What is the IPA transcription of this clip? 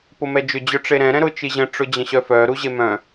p ʊ m ɛ d͡ʒ ʏ d͡ʑ œ ʈ͡ʂ e ɾ ɛ̃ ɾ ɛ̃ ɾ ʊ t͡ʃ i ʑ ə̃ ʈ͡ʂ ʊ d͡ʑ ə̃ ɕ œ f œ ɾ u ʑ e m œ̃

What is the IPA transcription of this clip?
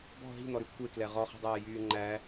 b ɔ̤ ɦ i̤ n̪ ɔ ɾ ʉ kʷʰ e k l ɛ ʁ ɔ χ ɛ̤ dˤ æː j yː ŋ͡ǃ æ

